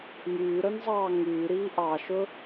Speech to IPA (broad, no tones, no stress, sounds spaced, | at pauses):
m yː ɾ œ n zˤ ɑː ŋ yː ɾ iː ʔ ɑ ʃ ɵ